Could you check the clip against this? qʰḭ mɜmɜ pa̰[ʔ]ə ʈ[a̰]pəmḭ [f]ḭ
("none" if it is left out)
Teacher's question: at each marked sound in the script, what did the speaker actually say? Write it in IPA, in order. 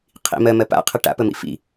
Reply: qʰ, a̰, f

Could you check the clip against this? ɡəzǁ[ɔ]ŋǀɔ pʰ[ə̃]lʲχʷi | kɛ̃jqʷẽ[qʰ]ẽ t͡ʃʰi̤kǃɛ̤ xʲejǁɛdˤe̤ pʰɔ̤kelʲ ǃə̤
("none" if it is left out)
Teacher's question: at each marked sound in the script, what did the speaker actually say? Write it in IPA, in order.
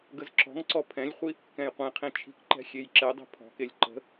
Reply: ɔ̤, ɛ̃, qʰ

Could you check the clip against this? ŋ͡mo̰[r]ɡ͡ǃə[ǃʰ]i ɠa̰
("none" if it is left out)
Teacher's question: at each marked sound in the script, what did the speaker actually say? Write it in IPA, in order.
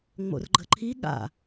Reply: r, ǃʰ

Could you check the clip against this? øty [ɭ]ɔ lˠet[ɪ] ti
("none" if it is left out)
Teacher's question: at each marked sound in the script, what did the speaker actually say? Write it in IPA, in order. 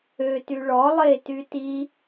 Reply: ɭ, y

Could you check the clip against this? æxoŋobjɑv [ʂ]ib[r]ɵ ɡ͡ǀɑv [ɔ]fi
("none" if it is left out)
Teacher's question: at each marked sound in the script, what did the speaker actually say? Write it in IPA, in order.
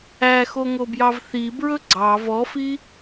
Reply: θ, ɹ, ɔ

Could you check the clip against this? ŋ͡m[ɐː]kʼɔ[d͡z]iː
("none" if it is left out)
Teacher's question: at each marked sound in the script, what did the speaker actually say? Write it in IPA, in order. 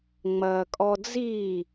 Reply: ɐː, d͡z

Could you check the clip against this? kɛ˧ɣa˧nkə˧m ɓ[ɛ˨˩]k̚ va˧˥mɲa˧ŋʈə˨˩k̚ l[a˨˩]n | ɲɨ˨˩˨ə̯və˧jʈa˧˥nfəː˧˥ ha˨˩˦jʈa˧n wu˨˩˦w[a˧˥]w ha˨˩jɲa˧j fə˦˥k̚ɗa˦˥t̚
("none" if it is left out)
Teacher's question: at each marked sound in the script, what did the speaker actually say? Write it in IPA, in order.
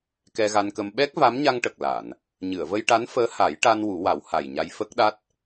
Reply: ɛ˦˥, a˨˩˨, a˨˩˦

